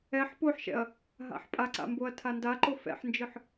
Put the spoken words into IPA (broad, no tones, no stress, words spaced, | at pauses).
ɛħ poħʃɛ̰ɐ̯ | ɦa̰ħpʼaǀa̰ mboɐ̯tʰandaǃo fɛ̰ħnd͡ʒɯħ